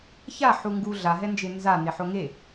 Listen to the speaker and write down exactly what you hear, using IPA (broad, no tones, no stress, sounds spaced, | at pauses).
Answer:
ç a ħ u ŋ ɡ u ɮ a ɦ ɛ n d͡ʒ e n z a n e ħ o ŋ e